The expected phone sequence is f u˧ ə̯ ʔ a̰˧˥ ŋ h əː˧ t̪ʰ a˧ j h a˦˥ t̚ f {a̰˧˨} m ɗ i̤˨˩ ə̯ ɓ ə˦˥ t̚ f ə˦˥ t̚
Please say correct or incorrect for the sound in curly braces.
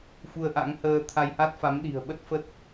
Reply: incorrect